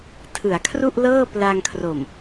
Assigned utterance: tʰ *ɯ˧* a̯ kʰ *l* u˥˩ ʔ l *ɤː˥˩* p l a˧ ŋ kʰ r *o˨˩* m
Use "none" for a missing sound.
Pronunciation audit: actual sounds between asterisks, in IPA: ɯ˩˦, r, ɤː˥˩, o˨˩

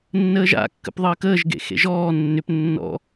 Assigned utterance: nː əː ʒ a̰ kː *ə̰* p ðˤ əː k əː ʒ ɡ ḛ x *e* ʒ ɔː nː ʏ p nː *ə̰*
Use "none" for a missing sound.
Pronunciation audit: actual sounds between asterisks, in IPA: ə̰, ḛ, ɔ̰

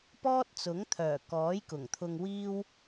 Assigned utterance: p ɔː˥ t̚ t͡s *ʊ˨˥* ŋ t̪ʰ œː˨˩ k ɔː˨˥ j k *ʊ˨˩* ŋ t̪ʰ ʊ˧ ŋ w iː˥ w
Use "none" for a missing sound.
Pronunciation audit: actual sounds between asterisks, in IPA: ʊ˨˥, ʊ˨˩

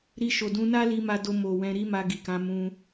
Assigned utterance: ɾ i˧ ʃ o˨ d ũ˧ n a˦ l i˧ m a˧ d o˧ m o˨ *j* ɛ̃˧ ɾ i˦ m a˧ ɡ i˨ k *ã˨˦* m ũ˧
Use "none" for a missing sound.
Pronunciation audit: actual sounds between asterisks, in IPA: w, ã˨˦

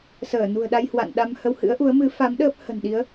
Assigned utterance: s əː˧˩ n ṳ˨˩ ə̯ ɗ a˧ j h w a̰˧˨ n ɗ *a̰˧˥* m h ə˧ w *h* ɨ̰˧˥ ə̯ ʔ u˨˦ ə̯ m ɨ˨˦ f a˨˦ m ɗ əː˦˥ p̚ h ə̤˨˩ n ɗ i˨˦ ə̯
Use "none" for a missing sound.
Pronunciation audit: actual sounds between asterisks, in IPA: a˧, h

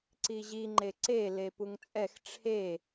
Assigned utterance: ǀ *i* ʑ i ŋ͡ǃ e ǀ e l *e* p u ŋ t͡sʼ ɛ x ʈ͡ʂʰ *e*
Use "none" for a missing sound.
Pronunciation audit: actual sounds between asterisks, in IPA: i, e, e

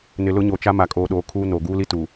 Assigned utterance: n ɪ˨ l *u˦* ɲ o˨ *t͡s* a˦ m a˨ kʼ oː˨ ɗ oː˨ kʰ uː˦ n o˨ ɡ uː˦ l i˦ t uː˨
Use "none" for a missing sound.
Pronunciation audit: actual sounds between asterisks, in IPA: ʊ˦, t͡ʃ

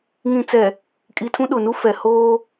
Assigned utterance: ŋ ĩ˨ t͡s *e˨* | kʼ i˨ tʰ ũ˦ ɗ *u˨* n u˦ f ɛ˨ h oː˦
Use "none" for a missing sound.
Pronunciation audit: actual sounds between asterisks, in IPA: ɛ˨, ʊ˨

